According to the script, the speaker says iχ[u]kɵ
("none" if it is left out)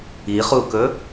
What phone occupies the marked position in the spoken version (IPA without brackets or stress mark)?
u